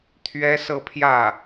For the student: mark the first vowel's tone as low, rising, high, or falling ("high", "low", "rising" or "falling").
high